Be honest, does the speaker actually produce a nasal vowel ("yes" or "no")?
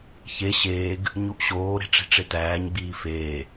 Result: no